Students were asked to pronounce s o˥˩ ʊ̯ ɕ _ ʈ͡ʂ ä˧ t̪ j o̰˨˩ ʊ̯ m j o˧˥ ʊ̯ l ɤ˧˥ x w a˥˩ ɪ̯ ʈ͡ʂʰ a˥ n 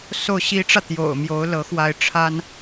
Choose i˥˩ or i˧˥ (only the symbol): i˧˥